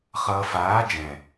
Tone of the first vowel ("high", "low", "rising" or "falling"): low